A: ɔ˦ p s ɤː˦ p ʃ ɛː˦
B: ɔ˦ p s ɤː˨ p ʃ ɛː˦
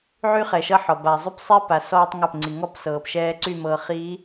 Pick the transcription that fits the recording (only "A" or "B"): B